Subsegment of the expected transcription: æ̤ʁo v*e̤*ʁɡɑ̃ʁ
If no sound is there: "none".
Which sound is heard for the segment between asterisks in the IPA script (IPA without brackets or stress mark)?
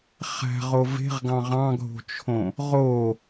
e̤